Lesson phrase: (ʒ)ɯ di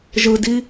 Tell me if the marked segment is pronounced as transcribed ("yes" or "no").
yes